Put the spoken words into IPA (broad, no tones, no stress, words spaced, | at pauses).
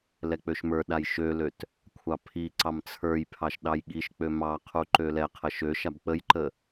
lɛk͡pøʃmə˞ɗaj ʃøløt | kʷʰɑpʰiǀɑm t͡sʰə˞j pʰɑʃɗɑjɠiʃk͡pø mɑqʰu ǃølɛqʰə ʃøʃab k͡pəjǃə